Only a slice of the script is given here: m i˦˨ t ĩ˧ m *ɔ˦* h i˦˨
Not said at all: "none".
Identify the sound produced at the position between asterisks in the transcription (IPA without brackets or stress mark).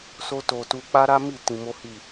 o˦